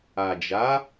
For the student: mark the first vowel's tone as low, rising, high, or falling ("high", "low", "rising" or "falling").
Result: low